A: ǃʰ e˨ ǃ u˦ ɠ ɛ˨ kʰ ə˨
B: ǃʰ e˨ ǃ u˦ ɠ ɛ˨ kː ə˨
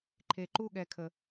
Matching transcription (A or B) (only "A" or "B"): A